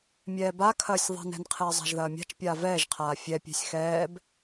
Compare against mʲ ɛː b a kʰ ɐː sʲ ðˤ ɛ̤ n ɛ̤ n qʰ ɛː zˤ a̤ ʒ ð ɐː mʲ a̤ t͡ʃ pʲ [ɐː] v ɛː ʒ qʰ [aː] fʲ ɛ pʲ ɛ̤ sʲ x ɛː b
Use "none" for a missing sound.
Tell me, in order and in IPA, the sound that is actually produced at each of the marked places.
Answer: aː, aː

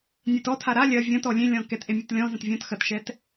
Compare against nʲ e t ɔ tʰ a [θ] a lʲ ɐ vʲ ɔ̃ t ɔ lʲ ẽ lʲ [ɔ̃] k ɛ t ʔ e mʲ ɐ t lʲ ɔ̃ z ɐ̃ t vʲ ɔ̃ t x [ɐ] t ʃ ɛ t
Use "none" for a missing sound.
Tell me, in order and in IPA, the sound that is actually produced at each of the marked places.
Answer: ɾ, ɔ̃, ɐ

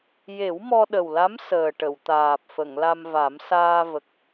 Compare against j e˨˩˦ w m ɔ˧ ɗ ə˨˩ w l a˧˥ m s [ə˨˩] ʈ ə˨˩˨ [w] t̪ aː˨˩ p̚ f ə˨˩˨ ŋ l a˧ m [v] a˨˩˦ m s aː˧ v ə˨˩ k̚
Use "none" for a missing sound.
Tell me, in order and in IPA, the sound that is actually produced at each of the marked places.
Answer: əː˨˩, w, v

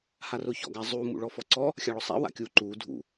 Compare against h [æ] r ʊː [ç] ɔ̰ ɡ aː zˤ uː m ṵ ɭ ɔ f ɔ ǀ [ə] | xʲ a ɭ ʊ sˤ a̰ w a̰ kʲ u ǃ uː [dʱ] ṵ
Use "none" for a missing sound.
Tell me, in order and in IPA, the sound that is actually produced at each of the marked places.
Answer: a, ç, ɔ, dʱ

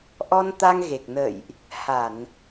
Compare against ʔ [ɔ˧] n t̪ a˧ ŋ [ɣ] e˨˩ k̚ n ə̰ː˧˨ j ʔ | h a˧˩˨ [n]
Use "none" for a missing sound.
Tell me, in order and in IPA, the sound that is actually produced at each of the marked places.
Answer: ɔ˧, ɣ, n

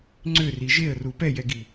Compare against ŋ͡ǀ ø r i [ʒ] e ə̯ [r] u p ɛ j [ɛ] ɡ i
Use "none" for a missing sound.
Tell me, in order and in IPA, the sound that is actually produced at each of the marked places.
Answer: ʒ, r, ɛ

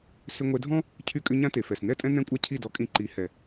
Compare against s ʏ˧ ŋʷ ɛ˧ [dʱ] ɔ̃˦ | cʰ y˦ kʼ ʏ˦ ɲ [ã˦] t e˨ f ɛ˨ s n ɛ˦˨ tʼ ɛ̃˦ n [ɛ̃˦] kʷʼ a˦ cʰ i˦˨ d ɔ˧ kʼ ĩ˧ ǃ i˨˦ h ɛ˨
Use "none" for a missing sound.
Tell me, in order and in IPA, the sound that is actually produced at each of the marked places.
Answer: dʱ, ã˦, ɛ̃˦

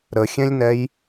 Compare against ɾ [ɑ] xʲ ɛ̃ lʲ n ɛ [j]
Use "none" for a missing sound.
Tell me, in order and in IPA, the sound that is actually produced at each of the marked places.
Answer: ə, j

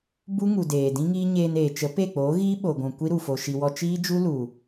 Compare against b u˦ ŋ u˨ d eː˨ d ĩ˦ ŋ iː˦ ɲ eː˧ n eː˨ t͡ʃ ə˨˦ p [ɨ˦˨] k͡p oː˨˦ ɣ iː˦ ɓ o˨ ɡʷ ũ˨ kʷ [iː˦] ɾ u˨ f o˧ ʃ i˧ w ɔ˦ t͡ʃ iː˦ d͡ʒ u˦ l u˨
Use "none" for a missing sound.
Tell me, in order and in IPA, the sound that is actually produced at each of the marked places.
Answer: e˦˨, i˦

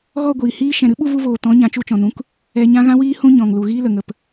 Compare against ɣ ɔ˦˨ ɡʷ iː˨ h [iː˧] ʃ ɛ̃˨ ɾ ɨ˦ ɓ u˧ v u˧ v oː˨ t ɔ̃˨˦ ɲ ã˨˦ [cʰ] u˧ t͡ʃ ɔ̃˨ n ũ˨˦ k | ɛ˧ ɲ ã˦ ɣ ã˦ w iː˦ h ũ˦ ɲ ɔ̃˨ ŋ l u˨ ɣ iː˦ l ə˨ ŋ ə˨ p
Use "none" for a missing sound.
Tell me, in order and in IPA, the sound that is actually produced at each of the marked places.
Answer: iː˧, t͡ʃ

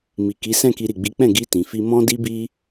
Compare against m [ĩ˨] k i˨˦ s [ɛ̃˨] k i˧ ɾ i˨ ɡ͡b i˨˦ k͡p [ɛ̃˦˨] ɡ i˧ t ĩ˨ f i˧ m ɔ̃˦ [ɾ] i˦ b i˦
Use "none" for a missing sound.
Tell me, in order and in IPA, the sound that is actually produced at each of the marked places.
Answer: i˨, ɛ̃˦˨, ɛ̃˦˨, d

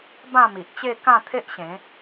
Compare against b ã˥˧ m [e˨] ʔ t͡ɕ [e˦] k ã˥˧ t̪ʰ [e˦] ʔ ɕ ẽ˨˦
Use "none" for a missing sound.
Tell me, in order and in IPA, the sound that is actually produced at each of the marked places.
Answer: i˨, e˥˧, e˦

